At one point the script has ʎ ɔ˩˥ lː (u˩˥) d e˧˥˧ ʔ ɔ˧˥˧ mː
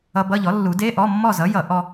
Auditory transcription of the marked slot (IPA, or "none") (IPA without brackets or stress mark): u˨˩˦